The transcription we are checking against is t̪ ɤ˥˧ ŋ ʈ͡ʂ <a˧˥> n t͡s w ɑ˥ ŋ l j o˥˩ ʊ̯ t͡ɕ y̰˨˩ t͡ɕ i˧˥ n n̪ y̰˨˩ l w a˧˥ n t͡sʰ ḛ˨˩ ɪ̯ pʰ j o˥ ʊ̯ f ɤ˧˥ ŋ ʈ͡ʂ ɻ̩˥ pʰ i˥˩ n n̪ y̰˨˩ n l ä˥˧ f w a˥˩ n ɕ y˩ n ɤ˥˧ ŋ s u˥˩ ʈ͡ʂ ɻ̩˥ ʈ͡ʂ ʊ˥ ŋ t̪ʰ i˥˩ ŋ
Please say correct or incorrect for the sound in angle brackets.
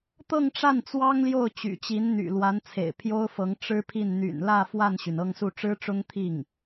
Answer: incorrect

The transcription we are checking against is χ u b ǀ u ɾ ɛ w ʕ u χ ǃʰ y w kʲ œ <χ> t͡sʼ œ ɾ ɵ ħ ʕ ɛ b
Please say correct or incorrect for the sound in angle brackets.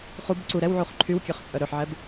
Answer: correct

